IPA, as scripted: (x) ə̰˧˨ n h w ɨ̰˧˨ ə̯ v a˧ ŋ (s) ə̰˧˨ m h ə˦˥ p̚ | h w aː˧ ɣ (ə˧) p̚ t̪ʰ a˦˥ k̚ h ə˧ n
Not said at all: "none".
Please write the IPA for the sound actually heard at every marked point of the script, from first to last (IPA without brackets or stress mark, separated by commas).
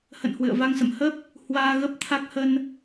h, s, ə˦˥